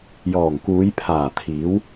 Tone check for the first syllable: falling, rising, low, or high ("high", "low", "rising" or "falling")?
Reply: low